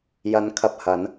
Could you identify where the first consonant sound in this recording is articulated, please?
palatal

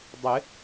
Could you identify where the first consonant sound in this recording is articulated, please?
alveolar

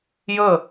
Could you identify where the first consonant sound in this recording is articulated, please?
palatal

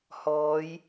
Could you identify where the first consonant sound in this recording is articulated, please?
glottal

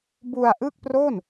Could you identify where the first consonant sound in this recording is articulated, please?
labial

